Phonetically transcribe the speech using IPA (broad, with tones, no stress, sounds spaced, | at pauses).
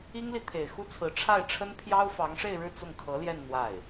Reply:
i˥ ŋ l i˨ t̪ʰ e˨˩ ɪ̯ x u˥ t͡sʰ ɹ̩˧˥ ʈ͡ʂʰ a˥˩ ɪ̯ ʈ͡ʂʰ ə˥ n pʰ j ɑ˥ ʊ̯ f ɑ˧˥ ŋ ʂ e˥˧ ɪ̯ ɻ ɻ̩˥˧ t͡s ʊ˥˩ ŋ kʰ ɤ˧˥ l j ɛ˥˧ n n̪ w a˥˩ ɪ̯